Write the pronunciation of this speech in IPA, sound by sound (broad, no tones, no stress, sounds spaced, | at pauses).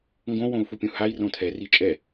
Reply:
ŋ ɡ õ w õ u̯ f u pʲ ũ h a i̯ r õ tʰ ɛ r i t͡ʃʼ ɛ